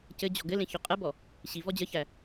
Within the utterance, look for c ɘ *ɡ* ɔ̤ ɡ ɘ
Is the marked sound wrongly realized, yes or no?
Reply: yes